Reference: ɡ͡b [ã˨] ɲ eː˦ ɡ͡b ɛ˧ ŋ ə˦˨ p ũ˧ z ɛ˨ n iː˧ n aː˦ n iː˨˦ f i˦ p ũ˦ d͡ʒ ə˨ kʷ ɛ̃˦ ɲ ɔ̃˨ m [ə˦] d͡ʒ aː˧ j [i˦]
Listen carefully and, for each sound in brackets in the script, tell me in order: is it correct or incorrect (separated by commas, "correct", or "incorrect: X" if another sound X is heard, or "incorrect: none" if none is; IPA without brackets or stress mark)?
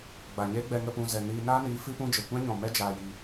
incorrect: a˨, incorrect: ɛ˦, incorrect: i˧